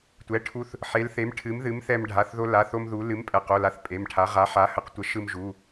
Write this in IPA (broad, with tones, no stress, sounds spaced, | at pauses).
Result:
tʷ ɛ˩˧˩ ʈʰ u˧ θ | ħ e˨˥ l θ e˨˥ m ʈʰ ɨ˨˥ m ð ɨ˨˥ m θ ɛ˧ m ɖʱ a˩˧˩ θ ð o˧ l a˩˧˩ θ o˧ m ð u˨˥ l ɨ˨˥ m pʼ ɛ˩˧˩ q o˩˧˩ l a˨˥ θ pʼ e˩˧˩ m ʈʰ a˨˥ ʁ a˨˥ ħ a˨˥ h ə˨˥ q tʷ ə˨˥ ʃ ɯ˧ m ʒ u˩˧˩